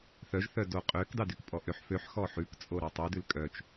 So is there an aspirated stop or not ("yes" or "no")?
no